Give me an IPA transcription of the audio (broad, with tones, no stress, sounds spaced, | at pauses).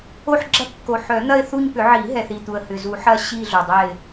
o˦˨ ħ ɡ͡ǁ ɐ˦˨ kː o˨˩ ħ œ˨˩˦ n̪ ɐ˦˨ ɪ̯ θ u˦˨ ɲ p ʏ˨˩˦ ʕ i˨˩˦ ɦ ɛ˨˩ θ i˨˩ t̪ u˨˩ ə̯ h ʏ˨˩ z u˨˩˦ ħ ɐ˦˨ ɕ i˦˨ ɮ o˨˩ dˤ ɛ˦˨ ɪ̯